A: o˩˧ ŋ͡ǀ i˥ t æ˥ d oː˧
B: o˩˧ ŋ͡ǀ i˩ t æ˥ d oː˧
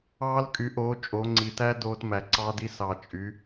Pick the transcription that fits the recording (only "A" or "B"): B